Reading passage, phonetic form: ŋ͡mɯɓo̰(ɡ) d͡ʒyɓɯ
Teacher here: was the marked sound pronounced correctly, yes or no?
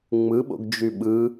yes